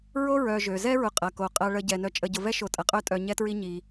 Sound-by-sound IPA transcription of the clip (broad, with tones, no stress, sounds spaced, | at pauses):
ɹ o˥ ɹ œ˨ ʒ ø˩ z ɛ˥ ɹ ʊ˨ qʼ ɐ˩ k o˩ qʼ ɐ˨ ɭ ə˨ ɟ ɛ˩ n œ˨ t͡ʃʼ ə˨ ɟ ʊ˨ v ɛ˥ ʃ o˨ tʼ ɐ˩ qʼ œ˦ tʼ œ˨ ɲ ɛ˦ t ɹ i˦ ɲ i˨